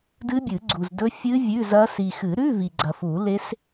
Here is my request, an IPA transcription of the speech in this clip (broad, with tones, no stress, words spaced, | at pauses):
dɨ˦˥bʲɨ˨˩˦ɡ͡ǀu˨zdɵ˦˥ fʲɨ˦˥ vʲʉ˧˥˧zɐ˦˥ si˨xɨ˨˩˦ɾʉ˧˥˧ vi˨ɡ͡ǀɐ˨fu˨˩˦ le˦˥s